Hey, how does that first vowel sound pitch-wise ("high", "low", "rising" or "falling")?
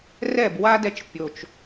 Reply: falling